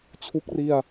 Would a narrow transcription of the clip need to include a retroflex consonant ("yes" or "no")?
no